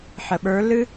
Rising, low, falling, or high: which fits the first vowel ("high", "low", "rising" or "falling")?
low